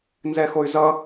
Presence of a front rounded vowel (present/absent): present